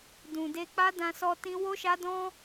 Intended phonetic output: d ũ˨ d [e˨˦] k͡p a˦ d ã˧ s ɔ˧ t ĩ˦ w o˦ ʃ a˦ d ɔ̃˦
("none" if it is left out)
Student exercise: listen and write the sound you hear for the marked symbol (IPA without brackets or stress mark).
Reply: e˧